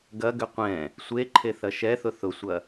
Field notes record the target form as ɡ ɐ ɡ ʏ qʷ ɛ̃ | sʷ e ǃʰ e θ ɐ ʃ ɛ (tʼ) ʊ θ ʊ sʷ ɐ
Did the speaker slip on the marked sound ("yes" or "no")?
yes